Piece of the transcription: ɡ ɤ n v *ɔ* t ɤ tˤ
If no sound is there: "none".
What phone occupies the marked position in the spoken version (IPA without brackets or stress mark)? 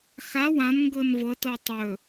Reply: ɤ